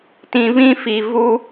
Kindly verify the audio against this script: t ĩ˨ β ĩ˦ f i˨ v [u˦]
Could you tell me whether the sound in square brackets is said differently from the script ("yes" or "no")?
no